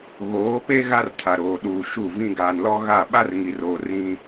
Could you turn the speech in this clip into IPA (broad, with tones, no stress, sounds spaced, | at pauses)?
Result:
ɣ oː˨˦ p e˦ ɣ a˦ r tʰ a˨ ɾ oː˨ ɗ uː˨ ʃ u˦˨ v ĩ˦ ɡ aː˨ n l ɔ˦ ɣ a˦˨ ɓ a˦ r ŋ i˨ r oː˨ r ĩ˦